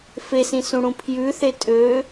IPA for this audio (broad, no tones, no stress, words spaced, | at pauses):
fesĩsũɽũ pʰjʉθe tʼø